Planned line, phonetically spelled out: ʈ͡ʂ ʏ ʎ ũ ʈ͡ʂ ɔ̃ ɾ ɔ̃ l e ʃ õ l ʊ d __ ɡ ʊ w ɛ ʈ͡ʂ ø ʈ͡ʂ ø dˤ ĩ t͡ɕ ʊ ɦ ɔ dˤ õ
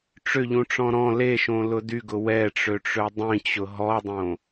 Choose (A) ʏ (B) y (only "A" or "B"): B